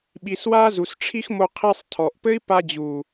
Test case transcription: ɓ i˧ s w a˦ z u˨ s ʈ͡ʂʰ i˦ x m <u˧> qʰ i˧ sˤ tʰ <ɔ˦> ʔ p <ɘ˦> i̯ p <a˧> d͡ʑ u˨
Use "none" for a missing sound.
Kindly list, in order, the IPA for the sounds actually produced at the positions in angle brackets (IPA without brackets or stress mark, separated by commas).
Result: o˧, ɔ˨, ɘ˦, a˧